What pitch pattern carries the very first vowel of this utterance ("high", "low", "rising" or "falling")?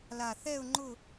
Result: low